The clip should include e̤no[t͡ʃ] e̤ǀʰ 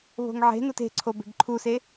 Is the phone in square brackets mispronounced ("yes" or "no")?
yes